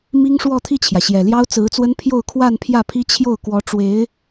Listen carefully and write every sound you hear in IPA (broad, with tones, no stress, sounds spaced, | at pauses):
m i˥ ŋ ʂ w ɔ˥˧ t̪ʰ i˥˩ t͡ɕʰ j ä˩ ɕ j ɛ˨˩ l j ɑ˥ ʊ̯ t͡s ɹ̩˧˥ t͡s w ə˥ n pʰ j o˥˧ ʊ̯ kʰ w a˥˧ n pʰ j ä˥˩ pʰ i˥ t͡ɕʰ j o˥˩ ʊ̯ k w ɔ˧˥ ʈ͡ʂ w e˧˥ ɪ̯